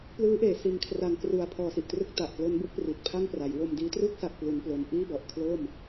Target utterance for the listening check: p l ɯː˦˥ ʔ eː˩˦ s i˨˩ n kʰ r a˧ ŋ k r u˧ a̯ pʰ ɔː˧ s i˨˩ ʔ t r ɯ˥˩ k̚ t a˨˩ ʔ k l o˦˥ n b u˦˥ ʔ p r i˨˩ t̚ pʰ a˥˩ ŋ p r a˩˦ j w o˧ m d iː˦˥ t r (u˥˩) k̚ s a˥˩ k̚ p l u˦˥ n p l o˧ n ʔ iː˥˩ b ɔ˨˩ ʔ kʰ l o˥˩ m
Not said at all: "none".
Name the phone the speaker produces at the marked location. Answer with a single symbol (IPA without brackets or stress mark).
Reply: u˥˩